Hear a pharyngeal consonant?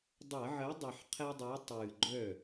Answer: yes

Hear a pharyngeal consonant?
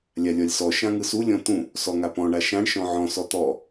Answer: yes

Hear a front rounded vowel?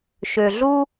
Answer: yes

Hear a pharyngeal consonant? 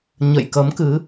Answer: no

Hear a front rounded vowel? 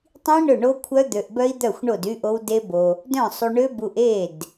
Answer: yes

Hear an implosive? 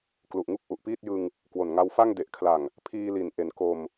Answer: no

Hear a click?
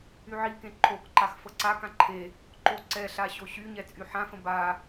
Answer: yes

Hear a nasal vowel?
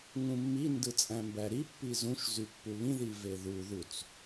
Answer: yes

